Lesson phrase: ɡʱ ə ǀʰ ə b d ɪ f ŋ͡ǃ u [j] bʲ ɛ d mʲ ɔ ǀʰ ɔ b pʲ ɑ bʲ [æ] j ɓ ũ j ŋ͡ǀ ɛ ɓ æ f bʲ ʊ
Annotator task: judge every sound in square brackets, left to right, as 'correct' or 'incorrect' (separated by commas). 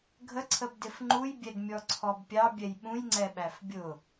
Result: correct, incorrect